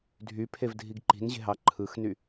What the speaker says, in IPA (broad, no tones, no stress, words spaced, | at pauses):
dʱypʰevdʱiɡ ǃi̤nʑe̤ɦɑ ǃʰɯxny